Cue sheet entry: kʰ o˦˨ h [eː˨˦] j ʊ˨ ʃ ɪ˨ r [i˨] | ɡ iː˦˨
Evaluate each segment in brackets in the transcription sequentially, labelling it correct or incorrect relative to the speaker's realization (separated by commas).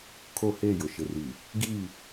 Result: incorrect, correct